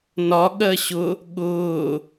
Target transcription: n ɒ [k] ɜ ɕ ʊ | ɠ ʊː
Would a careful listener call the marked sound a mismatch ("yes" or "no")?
yes